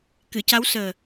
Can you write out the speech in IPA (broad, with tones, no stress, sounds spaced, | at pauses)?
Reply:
k ɨ˨˩˨ c a˧˥ w s əː˨˩